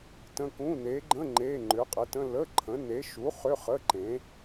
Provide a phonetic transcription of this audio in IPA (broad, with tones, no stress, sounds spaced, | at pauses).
t ə̃˧˥˧ k ũ˧˥˧ n e˨˥ ɡ͡ǃ ə̃˧˥˧ ŋ͡ǃ e˧˥˧ ŋ͡ǃ ʏ˨˥ qʼ ə˨˥ t ə̃˧˥˧ l ə˧˥˧ ǃʰ ə̃˨˥ n e˨˥ ʃ u˨˥ χ ʏ˧˥˧ χ ə˧˥˧ ǃ ẽ˨˥